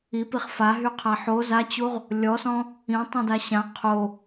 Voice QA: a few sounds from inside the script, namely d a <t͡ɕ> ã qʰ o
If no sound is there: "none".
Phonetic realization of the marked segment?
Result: ɕ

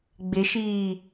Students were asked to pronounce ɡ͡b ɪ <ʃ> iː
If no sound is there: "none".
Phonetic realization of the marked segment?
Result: ʃ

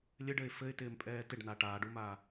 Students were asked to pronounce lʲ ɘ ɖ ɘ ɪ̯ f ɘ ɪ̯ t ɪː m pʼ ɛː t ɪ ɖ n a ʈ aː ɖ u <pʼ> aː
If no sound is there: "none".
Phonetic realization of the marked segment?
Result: m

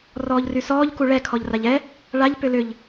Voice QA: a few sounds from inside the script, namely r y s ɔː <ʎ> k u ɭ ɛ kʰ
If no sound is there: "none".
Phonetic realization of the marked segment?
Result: ʎ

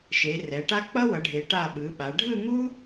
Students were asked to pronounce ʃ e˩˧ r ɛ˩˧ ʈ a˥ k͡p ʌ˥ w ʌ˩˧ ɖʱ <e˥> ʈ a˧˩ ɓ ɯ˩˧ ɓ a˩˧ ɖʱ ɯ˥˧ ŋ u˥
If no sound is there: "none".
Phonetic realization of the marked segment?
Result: e˩˧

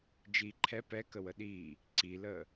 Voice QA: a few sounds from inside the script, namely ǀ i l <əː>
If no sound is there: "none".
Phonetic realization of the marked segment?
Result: əː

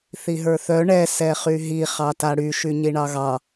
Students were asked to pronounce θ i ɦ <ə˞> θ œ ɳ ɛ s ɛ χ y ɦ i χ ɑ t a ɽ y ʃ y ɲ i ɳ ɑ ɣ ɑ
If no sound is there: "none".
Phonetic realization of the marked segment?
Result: ə˞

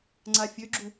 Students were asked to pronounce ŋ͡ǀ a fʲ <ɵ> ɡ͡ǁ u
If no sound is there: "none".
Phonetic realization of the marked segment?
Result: ø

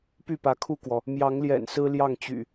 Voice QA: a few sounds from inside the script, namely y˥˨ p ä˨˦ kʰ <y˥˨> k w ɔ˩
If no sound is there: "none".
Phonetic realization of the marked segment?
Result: u˥˨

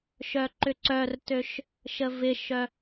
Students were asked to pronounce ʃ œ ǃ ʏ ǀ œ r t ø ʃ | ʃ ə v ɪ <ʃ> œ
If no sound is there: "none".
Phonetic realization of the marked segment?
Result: ʃ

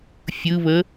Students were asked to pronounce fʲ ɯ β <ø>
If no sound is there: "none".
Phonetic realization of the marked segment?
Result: ə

